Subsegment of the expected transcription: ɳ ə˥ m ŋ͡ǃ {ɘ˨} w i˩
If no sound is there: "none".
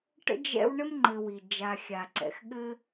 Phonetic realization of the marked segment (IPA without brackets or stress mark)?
ɘ˨